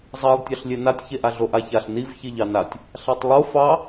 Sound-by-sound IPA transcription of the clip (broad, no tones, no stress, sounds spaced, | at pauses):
zˤ ɑ lˠ tʲ ɑ ɬ lʲ e n a tʲ ç e ʔ a ɮ o ʔ a ç a ɬ n i v ç i ʎ ɑ n a tʲ | ɬ a tˤ lˠ o f ɑ